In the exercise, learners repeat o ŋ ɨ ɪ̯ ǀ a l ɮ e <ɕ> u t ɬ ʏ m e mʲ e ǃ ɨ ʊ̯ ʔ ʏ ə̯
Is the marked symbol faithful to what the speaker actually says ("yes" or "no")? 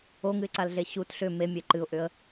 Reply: yes